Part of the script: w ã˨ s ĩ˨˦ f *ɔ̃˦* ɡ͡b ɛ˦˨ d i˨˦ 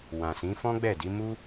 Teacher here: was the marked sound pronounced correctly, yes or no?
yes